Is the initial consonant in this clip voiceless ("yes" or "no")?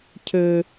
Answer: yes